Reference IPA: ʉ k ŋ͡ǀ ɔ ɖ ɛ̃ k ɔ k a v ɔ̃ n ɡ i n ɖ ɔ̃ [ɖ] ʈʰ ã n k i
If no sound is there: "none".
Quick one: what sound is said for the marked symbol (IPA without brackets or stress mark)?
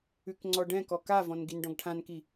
ɡ